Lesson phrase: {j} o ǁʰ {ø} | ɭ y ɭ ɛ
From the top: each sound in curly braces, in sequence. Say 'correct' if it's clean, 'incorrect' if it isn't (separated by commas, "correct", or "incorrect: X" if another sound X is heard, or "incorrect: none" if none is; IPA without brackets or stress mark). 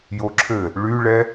correct, incorrect: ɘ